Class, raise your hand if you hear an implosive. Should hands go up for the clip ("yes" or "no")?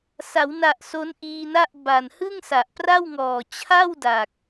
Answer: no